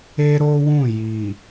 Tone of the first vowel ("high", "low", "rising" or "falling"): high